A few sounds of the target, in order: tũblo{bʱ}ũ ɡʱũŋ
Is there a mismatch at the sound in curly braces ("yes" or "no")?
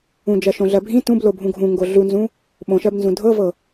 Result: no